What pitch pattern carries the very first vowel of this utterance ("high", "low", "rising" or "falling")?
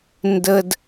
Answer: high